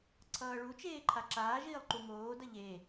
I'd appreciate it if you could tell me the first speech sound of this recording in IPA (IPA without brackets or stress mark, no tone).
ǀʰ